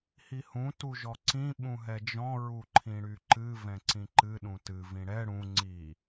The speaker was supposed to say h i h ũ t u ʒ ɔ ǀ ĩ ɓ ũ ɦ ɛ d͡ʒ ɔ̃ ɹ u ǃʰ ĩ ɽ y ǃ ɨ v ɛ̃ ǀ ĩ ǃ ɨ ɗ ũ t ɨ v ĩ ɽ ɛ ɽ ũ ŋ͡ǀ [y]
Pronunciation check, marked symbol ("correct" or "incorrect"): incorrect